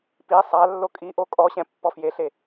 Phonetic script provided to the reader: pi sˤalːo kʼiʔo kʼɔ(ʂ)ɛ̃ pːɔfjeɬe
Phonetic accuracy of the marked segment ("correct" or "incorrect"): incorrect